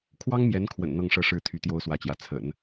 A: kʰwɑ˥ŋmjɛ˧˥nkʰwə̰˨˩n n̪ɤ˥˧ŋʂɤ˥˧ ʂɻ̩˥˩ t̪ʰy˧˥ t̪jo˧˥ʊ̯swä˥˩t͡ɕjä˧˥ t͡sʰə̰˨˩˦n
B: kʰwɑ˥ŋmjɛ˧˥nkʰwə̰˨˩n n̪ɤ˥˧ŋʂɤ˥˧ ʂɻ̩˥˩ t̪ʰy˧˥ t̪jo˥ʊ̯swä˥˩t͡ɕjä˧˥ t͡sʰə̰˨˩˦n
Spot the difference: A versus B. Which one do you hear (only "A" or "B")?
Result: B